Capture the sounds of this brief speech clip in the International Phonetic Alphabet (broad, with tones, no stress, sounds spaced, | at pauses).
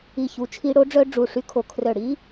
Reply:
i˧˩ ç u˨˥ t͡ʃʰ i˦˥ ɽ o˦˥ ɖ͡ʐ œ˦˥ ɖ͡ʐ u˧˩ ʂ y˦˥ kʰ o˧˩ kʰ r œ˧˩ ɽ i˦˥